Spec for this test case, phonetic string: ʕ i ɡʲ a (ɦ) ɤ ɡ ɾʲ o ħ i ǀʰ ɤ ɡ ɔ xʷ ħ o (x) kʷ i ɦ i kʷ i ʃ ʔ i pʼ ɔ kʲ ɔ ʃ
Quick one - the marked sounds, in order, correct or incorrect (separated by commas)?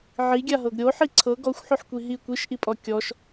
correct, incorrect